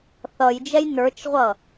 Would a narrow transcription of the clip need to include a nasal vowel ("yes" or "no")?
no